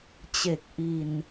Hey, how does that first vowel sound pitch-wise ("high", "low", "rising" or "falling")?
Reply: low